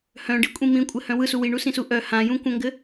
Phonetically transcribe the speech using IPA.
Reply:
h œ̃ ɖ i kʷʼ ĩ m ĩ kʷʼ ɘ h œ̃ w ɯ s u w i ɳ u s ĩ s u ʔ œ h ã j ũ kʷ œ̃ ŋ ɡ ɘ

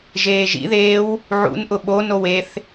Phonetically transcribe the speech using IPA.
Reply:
ʒ eː ʒ ḭ ð eː w | ʕ ṵ n ʔ ʊ ɓ o n o w e θ

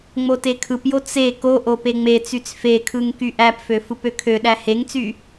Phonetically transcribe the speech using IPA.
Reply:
ŋ͡m o t e kʰ ɯ p j o t͡s e k o ʔ o p e ŋ͡m e t͡s y t͡s f e kʰ ɯ ŋ k y ʔ æ p f ø f ɯ p ø kʰ ø ɗ æ h e ŋ t͡s y

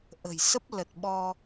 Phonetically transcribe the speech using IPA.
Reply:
ʔ ə̤˨˩ j s ə˦˥ p̚ l ə˨˩ t̚ ɓ ɔ˧

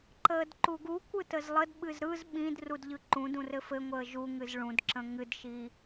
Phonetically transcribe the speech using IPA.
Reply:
ǃ əː d ǃ u ɡ u kʷ ɯ t ə z lˠ ə d ɓ ɨ z ɾ ɯ z ɓ ĩ d r u d ʎ ɯ ǃ ũ d ũ r ɘ f ɘ ŋʷ əː ʒ u ŋ ɨ z ɭ ũ d ǁ ə̃ ŋ ɨ d ʃ iː

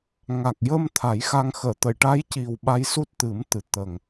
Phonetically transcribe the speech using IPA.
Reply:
ŋ a˨˩ k̚ j ə˧ m t̪ʰ a˨˩˦ j x a˧ ŋ x əː˨˩˨ t̪ ə˨˩˨ j ʈ a˧˥ j c i˨˩ w ɓ a˧ j s u˦˥ t̚ t̪ ɨ˨˩˦ m t̪ ɨ˨˩ t̪ ə˨˩ ŋ

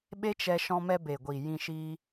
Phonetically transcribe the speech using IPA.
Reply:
ɓ e˦ t͡ʃ ɛ˧ ʃ ɔ̃˧ m ɛ˧ b e˨ ɡʷ i˨ j ĩ˧ ʃ iː˧

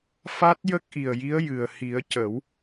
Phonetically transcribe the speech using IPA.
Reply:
f a˦˥ t̚ j ə˦˥ k̚ ʔ i˨˩ ə̯ j i˧˥ ə̯ j ɨ˨˩ ə̯ h i˨˩˦ ə̯ c ə˨˩˦ w

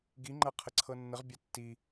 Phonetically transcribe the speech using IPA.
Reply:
ɡ i ŋ͡ǃ ɐ qʰ ə ǀʰ ɤ nː ə ʁ bʲ a tː i

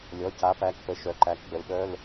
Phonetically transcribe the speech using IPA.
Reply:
lʲ ɔ˩˧˩ c a˨˥ p æ˩˧˩ k p ə˨˥ ʃ œ˩˧˩ ǃ æ˨˥ k ɡ͡b ə˨˥ l ɗ œ˧˥˧ l

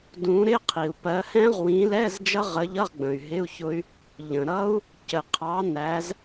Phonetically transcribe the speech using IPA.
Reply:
d ũ˨˦ ɾ ɪ˧˥˧ qʰ i˩ u̯ p ɜ˨˦ h ɛ̃˦˥ ʁ w ĩ˨˦ l ɛ˧˥˧ z d͡ʒ ʌ˦˥ ʁ ə˨˦ ʎ ʌ˧˥˧ ʁ ɡ͡b ə̃˩ y̯ ɦ ɪ˧˥˧ u̯ ç ʊ˦˥ y̯ | ʎ ə̃˩ ɾ ʌ˦˥ u̯ | c ə˩ qʰ ɑ˨˦ n æ˨˦ z

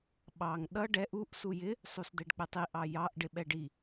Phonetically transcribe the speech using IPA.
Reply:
ɓ ɑ ŋ ɗ ʌ ɖ ɛ ʔ u ʔ s u j ɪ | sˤ u s d̪ ɛ ɖ k͡p ɛ tˤ i ʔ ɑ j ɑ ʔ ɖ ɪ ɓ ɛ ɖ i

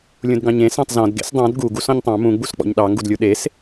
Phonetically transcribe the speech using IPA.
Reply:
lʲ ũ d ɡ ɑ̃ ɲ ẽ s ɑ̃ tˤ z ɔ̃ d ɡ ḛ s dˤ ɑ̃ d ɡ u ɡ u s ɔ̃ ɲ tˤ ɑ̃ m ũ ɡ͡b u s k͡p ɔ̰ ɲ ɗ ɑ ŋ ɡ u d lʲ u ɗ e s

